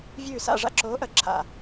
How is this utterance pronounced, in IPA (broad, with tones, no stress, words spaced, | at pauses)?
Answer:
vʲʉː˧˩sa̰˥˩ʐa̰˥˩ ǁoː˨˥ʔɐ˨˥ ǁʰa̰˧˩